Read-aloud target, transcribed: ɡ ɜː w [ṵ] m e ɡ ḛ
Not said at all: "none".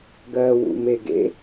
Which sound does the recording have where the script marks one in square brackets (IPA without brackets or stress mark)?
ṵ